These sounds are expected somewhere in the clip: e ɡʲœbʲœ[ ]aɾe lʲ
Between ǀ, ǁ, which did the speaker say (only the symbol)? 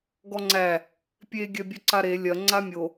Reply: ǀ